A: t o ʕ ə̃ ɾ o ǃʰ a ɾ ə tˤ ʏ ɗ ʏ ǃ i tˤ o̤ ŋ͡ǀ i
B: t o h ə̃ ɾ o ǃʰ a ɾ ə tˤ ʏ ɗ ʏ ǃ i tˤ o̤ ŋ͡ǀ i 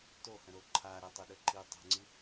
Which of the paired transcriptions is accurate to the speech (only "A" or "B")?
B